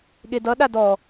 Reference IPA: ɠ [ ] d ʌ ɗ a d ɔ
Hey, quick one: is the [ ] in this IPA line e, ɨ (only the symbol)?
e